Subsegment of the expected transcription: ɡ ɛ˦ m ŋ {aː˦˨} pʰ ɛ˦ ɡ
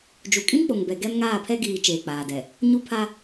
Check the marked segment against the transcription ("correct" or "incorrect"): correct